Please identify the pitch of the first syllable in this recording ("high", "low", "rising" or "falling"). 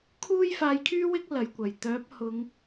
high